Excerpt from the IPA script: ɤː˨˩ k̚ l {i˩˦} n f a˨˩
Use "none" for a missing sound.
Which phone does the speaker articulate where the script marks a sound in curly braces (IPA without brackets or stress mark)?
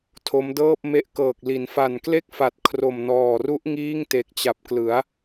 i˩˦